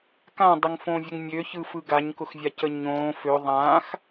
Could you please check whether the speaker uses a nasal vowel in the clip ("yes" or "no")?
yes